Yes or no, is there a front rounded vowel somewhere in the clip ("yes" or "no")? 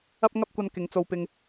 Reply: no